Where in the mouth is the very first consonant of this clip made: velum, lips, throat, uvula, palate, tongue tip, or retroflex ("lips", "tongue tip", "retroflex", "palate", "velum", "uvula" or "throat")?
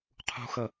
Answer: uvula